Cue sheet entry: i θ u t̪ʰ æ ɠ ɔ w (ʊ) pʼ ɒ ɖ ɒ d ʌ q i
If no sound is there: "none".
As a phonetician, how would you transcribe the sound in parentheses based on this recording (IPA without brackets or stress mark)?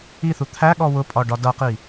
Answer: ʊ